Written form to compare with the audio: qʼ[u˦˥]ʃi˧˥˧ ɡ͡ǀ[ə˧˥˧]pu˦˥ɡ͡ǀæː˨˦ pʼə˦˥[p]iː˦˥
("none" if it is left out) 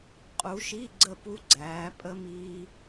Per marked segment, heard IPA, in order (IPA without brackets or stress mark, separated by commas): u˨˦, ə˥˨, m